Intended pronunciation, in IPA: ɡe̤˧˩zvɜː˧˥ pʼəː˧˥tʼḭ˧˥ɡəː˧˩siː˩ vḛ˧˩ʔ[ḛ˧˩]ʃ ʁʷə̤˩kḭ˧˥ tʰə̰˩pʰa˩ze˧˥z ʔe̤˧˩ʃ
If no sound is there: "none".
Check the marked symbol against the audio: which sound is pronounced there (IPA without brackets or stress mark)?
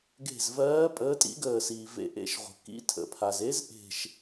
ḛ˧˩